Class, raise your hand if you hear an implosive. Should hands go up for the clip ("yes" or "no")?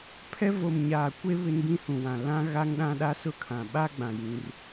yes